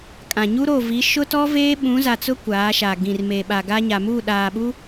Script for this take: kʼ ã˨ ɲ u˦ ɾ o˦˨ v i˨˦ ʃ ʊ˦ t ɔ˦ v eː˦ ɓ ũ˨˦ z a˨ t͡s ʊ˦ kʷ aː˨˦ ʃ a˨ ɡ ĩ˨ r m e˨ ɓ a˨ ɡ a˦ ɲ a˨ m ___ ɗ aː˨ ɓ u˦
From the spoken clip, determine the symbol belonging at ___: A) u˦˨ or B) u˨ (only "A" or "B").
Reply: A